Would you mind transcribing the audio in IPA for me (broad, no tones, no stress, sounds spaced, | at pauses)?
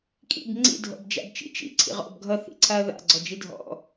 kʼ ḭ b ŋ͡ǀ ḭ dʱ ɔ̰ b d͡ʒ a̰ b t͡ʃ ḭ t͡ʃ ḭ ǀʰ ḭ ʁ ɔ̰ b ɡʱ ʌ θ ḭ ǀʰ a ɐ̯ ð a̰ ɡ͡ǀ ɔ d͡ʒ i dʱ ɔ̰